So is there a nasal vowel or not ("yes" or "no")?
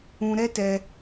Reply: yes